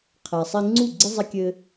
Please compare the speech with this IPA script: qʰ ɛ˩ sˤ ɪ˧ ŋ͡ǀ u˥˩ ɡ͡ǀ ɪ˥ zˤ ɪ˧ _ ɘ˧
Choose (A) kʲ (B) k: A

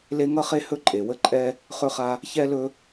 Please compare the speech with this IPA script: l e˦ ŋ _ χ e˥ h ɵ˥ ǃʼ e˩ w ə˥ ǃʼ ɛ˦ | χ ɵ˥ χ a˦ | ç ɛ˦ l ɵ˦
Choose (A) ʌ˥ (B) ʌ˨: A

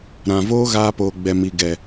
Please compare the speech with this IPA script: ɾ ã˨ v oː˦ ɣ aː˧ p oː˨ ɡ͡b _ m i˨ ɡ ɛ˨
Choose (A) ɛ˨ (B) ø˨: A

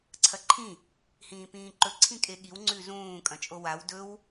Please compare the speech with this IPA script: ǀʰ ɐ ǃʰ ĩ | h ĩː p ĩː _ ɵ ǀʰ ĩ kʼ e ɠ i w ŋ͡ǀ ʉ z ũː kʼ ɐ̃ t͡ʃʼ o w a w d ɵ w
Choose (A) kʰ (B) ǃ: B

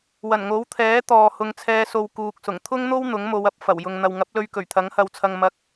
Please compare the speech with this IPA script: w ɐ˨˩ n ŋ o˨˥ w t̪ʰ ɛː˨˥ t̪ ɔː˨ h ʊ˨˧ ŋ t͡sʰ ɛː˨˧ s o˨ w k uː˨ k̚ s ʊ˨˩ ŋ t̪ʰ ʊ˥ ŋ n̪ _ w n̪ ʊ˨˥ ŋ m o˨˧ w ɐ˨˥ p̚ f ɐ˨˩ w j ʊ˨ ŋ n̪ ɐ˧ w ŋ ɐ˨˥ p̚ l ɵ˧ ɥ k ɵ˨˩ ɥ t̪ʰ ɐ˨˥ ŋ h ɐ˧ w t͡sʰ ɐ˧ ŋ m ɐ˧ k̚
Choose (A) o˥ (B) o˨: A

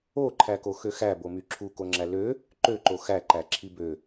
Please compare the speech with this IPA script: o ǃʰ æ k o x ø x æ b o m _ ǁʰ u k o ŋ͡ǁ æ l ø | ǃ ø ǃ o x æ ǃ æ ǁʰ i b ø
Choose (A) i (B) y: B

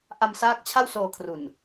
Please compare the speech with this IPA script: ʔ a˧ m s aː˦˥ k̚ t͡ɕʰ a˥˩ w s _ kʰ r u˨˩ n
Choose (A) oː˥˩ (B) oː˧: B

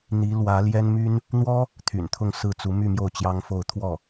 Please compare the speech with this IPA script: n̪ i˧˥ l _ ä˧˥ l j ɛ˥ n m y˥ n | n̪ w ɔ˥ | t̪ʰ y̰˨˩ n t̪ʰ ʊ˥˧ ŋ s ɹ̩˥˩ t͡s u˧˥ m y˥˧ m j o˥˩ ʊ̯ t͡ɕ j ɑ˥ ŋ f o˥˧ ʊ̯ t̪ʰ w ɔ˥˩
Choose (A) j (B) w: B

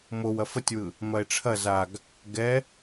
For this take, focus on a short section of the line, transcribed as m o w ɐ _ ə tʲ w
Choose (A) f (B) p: A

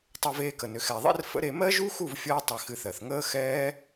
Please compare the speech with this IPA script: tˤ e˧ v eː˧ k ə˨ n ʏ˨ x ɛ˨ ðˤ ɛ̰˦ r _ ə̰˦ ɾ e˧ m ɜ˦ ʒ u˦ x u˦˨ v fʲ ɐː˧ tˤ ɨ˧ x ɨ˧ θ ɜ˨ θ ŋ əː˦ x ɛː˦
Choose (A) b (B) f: B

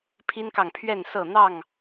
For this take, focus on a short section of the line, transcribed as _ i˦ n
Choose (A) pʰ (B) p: A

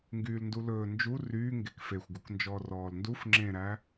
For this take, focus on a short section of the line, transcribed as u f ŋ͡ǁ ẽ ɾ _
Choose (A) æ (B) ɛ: A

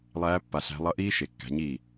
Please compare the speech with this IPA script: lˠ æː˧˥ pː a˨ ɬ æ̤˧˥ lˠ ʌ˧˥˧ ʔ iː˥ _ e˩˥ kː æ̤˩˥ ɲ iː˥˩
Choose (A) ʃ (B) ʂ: A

